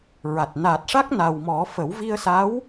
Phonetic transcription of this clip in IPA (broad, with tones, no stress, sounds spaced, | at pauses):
ɹ a˨˩ t̚ n a˨˩ t̚ ʂ a˦˥ k̚ n a˨˩ w m ɔ˨˩˦ f ə˨˩˦ w v i˧ ə̯ s a˧˥ w